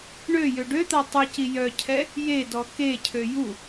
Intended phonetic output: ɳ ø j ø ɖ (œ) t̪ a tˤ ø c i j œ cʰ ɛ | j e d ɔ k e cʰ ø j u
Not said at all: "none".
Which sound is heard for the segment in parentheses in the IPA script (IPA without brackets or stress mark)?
ø